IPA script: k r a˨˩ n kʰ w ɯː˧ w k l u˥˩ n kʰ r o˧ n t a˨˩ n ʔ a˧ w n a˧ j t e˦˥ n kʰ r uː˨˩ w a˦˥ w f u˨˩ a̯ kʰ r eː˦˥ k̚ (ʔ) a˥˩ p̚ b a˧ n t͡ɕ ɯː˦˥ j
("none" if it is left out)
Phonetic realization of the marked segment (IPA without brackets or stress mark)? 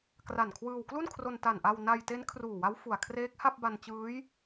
h